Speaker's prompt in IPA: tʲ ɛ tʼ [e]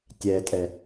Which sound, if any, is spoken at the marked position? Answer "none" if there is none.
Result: ɛ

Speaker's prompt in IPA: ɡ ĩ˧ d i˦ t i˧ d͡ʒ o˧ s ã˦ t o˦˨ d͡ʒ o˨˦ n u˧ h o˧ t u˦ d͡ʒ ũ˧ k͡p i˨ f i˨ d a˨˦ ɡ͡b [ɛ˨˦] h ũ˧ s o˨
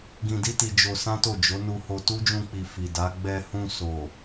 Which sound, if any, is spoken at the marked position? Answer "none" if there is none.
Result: ɛ˧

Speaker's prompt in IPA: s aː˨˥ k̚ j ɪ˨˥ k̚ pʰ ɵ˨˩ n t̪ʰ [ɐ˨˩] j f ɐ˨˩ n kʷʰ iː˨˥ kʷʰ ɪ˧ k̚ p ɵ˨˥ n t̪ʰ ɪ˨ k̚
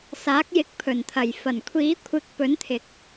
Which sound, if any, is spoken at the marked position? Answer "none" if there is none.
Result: ɐ˨˩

